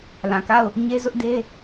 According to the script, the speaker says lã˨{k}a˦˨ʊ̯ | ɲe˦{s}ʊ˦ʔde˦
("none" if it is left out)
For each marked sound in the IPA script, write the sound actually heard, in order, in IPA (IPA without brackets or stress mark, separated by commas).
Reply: k, z